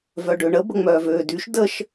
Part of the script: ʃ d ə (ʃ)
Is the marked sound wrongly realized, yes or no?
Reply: no